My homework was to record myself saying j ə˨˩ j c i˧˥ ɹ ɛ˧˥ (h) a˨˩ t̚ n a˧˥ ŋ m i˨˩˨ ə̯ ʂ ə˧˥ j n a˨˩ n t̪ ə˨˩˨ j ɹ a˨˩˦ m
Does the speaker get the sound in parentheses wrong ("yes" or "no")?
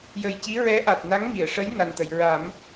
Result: yes